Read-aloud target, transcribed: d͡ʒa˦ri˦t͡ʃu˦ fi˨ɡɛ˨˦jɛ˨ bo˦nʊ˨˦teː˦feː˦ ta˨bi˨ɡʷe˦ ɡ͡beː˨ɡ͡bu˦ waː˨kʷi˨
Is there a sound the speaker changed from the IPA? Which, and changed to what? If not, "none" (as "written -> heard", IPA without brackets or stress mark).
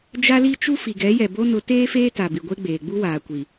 r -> l